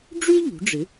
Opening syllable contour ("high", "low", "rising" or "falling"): high